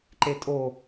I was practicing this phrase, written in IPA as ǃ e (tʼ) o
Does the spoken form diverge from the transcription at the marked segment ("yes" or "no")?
no